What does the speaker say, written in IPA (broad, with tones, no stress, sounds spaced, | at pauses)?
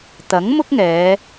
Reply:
t̪ ɐ˨˥ ŋ m ʊ˥ k̚ ŋ ɛː˨˧